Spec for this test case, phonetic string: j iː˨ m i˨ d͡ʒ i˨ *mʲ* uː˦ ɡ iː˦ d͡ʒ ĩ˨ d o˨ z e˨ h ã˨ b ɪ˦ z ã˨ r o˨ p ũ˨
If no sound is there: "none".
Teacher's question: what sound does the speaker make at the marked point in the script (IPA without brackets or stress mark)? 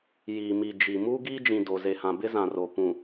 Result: m